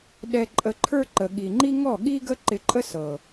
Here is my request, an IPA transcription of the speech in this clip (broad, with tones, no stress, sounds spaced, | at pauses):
ɗ ɛ˧ ǃʼ ə˧ ǃʰ ə˞˦ ǃ ə˨ ɠ i˨ ŋ͡ǃ i˦ ŋ ɔ˦˨ ɠ i˦ ɡ ə˦ ǃ ɪ˧ ǃʼ ə˦ s ɤ˨